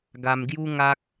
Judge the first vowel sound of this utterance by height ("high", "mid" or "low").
low